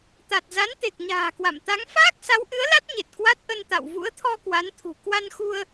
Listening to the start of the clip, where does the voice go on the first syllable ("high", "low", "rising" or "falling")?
low